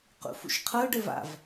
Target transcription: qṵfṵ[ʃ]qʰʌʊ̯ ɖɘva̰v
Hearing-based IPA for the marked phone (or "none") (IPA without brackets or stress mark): ʃ